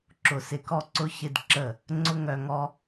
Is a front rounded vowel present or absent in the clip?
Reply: present